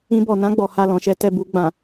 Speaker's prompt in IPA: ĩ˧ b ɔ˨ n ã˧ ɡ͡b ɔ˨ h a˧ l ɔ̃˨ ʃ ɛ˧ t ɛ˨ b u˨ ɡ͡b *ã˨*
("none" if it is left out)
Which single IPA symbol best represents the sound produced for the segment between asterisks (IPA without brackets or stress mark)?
ã˨